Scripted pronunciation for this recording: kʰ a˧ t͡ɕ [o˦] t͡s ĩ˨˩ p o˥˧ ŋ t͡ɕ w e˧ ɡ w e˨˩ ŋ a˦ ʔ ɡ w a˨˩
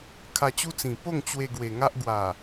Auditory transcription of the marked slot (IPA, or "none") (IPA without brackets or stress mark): u˦